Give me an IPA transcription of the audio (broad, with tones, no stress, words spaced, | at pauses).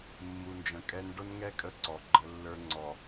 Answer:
mːu˨nd͡ʒə̃˨kʼɛ˦n ɖʊ˦nŋɛ˦ kʼə˦ǀɔ˨ ɡ͡ǃə˦ lːə˞˦ ŋ͡ǀɔ˨